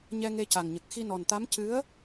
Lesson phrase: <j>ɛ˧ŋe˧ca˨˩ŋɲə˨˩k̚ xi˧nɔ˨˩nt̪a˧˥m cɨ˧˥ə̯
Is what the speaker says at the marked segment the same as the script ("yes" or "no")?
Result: no